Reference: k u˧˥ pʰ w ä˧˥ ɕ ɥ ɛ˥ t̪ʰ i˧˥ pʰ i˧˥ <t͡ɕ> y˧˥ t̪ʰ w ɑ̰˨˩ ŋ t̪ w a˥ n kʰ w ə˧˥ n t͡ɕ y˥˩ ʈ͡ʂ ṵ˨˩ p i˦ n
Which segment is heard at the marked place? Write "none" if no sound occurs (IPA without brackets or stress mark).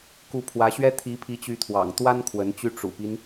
t͡ɕ